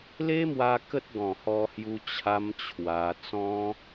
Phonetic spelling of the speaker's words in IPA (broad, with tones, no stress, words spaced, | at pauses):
le˦mwa˧ kə˦t̚ɡɔ̃˨˩hɔ˧hju˧ t͡ɕʰa˦mt͡ɕʰwa˧ t͡sɔ̃˦